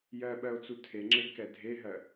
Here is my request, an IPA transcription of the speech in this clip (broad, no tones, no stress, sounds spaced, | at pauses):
j ɜ ɓ ɜ o̯ t͡s u tʰ e ŋ͡ǁ e ɡ k ɛ dʱ e ɦ ɜ